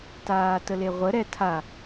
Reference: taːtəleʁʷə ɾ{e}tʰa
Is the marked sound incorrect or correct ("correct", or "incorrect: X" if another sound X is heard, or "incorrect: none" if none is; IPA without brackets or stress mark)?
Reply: incorrect: ɛ